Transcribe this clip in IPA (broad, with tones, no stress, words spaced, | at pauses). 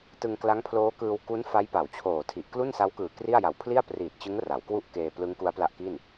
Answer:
tɯ˧ŋkla˦˥ŋpʰloː˦˥kɯː˧w ku˦˥n fa˦˥jpa˩˦wt͡ɕʰoː˨˩tʰi˨˩ʔ klu˥˩nsa˦˥wkɯː˨˩ kri˥˩a̯ ja˨˩w pʰli˥˩a̯priː˨˩t̚t͡ɕɯ˦˥ŋ ra˩˦wkwu˥˩ʔkeː˧ plɯ˦˥ŋku˦˥a̯pla˦˥ʔki˥˩n